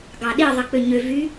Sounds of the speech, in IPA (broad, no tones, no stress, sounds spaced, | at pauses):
ɡ ɑ ɗ i ðˤ i k͡p ø ɲ ø v y